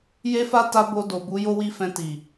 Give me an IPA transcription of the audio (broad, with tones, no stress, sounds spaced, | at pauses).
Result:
j e˦ f a˦ t a˦ b o˧ d o˨ b u˨˦ j o˦ w i˦ f ɛ̃˧ t i˨